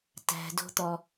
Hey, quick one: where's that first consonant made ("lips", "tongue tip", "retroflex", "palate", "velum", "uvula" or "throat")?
tongue tip